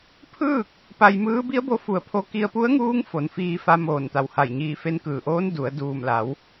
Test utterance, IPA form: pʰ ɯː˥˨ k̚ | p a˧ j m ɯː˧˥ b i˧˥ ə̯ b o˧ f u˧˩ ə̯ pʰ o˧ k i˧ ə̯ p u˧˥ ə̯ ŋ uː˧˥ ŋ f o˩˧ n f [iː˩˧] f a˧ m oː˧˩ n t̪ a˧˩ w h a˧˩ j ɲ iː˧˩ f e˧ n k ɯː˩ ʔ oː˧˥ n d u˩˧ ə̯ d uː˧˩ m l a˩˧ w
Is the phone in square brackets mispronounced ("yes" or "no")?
yes